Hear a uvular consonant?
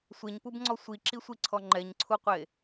yes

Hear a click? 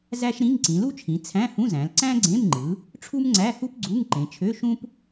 yes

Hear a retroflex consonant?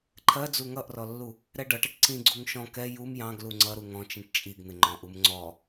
yes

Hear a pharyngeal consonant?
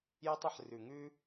yes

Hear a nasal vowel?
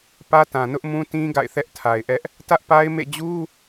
yes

